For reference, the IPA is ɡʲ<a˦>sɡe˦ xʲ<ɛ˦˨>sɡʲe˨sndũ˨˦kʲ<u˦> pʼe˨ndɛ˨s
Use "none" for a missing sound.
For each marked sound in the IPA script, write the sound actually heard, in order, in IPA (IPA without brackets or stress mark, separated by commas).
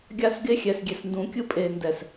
a˦, ɛ˨, ɯ˦